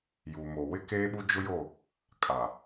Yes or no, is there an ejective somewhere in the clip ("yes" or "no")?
yes